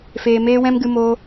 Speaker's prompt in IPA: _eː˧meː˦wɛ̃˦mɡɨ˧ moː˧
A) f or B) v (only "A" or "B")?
A